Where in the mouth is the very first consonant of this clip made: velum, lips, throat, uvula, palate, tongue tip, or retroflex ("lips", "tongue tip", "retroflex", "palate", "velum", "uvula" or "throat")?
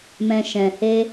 lips